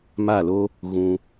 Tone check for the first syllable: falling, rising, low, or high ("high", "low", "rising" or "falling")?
falling